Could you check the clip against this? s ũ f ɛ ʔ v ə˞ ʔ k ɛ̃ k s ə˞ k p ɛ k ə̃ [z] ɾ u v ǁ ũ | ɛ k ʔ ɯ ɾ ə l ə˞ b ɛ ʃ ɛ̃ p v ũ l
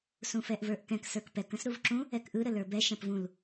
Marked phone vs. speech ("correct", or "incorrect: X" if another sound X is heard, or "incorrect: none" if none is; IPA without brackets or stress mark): incorrect: s